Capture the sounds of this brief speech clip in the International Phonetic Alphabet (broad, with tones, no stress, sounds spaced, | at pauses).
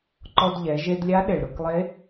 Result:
ǃ ɔ˧ d ʎ ɛ˩˧ ʒ e˧ d lʲ a˧˥ ɗ e˩ ɭ ɾ ʊ˩˧ k lˠ e˧˥